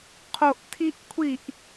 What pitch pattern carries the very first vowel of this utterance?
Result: low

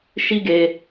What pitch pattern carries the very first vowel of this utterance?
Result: high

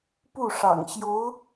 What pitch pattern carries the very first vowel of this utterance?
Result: falling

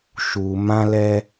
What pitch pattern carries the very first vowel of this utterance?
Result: low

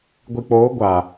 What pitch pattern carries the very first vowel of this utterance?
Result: low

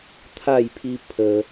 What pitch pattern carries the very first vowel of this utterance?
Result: falling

